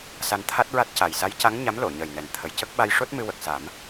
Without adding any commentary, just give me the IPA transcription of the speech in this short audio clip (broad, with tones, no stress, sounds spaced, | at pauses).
s a˧ n t̪ʰ a˦˥ t̚ ɹ a˦˥ t̚ c a˨˩ j s a˧˥ j c a˧˥ ŋ ɲ a˧˥ m l o˨˩˨ ɲ əː˨˩ j n ɛ˨˩ n t̪ʰ ə˨˩ j c ə˦˥ k̚ ɓ a˧ j ʂ o˦˥ t̚ m ɨ˧ w ə˨˩ k̚ s a˨˩˦ m